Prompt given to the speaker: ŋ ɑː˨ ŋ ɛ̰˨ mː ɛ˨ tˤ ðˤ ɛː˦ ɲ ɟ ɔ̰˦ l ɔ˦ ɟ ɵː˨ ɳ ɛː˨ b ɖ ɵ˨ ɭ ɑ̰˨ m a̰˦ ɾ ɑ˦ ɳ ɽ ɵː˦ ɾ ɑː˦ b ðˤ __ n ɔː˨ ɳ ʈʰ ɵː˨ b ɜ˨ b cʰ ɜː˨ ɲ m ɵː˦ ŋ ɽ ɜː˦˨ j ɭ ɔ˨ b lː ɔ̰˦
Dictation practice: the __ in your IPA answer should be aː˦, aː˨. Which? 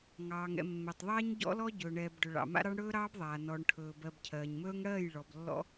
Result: aː˨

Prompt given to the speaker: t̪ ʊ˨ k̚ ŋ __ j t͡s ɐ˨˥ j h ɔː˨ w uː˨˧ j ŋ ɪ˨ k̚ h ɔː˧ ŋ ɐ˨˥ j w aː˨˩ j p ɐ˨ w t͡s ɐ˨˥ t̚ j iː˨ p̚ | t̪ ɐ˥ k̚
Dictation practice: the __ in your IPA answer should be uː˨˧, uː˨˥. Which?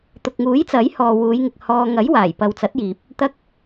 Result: uː˨˥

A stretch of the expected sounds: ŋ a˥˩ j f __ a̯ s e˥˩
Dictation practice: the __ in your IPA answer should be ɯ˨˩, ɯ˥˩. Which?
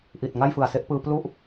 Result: ɯ˨˩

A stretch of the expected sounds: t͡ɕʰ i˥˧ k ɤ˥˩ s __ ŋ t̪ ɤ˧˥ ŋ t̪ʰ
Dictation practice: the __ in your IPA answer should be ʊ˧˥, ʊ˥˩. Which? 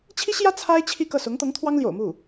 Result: ʊ˧˥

